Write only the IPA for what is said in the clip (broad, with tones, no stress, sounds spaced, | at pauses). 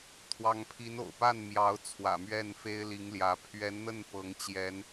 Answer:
t̪ʰ w ɑ˧˥ ŋ pʰ i˧˥ n o̰˨˩ ʊ̯ p a˥˩ n m j ɑ˧˥ ʊ̯ t͡sʰ w ä̰˨˩ m ɥ ɛ˥˩ n f e˥ ɪ̯ l i˧˥ ŋ l j ä˧˥ pʰ ɥ ɛ˧˥ n n̪ ə˥˩ n p ɤ˧˥ ŋ t͡ɕ j ɛ˧˥ n